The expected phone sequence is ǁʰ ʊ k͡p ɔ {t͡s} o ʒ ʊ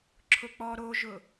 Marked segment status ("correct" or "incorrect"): incorrect